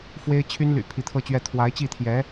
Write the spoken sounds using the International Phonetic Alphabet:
fwe˥ɪ̯t͡ɕʰy˥nly̰˨˩ pʰi˧˥t̪ʰɤ˥˧t͡ɕɥɛ˥˩ t̪ʰwa˧˥ɪ̯t͡ɕi˥˩t̪ʰjɛ˧˥

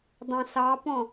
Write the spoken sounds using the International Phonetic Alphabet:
dˤɑ̃sɑpɔ̃

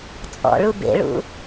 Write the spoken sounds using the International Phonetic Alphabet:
t͡sʼɔ̰ɭu bḛɭṵ

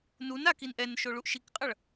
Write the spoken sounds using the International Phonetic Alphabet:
nun akin ʔɛnʃoɭuʔ ʃikqʼʌɭ

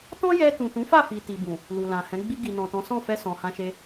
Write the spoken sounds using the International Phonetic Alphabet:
tɔ̃˦jɛ˧tũ˨ tũ˨˦fa˦˨fi˨ ti˨bũ˨ | lu˨lã˨hɛ̃˨˦ ɡ͡bi˧ɡi˨nɔ̃˨tɔ̃˨˦ sɔ̃˦˨fɛ˧ sɔ̃˨hã˧ʃe˧

